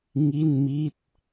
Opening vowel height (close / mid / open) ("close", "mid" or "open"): close